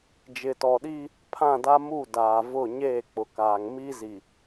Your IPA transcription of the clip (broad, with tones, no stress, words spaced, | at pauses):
d͡ʒɪ˨tɔ˨ɗiː˦ | pʰã˦˨da˦mu˦˨ da˨vʊ˦˨ ɲeː˦˨k͡pʊ˨kaː˨ŋ mi˦zi˨